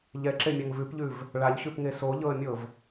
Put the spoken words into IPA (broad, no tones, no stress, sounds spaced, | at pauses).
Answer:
ʎ ɛ ǁ e mʲ a ŋ v ʉ p ʎ ʉ v | ɭ a ʎ ɕ ʉ p ŋ e s o ʎ ɤ ə̯ mʲ ɤ v